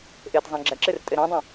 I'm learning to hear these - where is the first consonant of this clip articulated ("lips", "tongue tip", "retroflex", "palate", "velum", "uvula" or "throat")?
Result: throat